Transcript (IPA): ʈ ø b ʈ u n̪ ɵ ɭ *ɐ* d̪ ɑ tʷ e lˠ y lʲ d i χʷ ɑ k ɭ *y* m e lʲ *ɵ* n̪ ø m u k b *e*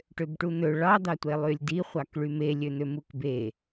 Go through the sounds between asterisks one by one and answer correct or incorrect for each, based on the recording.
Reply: incorrect, correct, incorrect, correct

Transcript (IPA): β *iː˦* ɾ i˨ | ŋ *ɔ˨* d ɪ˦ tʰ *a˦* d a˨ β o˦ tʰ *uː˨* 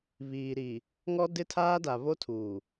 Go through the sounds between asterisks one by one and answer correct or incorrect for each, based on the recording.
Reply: incorrect, incorrect, incorrect, correct

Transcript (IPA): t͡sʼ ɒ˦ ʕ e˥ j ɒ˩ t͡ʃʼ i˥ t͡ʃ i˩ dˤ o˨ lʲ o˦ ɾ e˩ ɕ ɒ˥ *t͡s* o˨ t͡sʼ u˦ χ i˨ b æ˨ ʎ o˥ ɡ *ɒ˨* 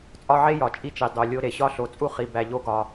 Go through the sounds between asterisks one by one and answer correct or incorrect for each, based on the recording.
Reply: incorrect, correct

